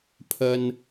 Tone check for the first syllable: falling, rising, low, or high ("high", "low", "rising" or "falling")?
low